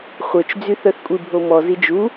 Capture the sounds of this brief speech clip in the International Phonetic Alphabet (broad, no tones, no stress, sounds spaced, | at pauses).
χʷ œ t͡ʃ d͡z y θ œ θ kʷʼ i bʱ o m ɔ z i d͡ʒ u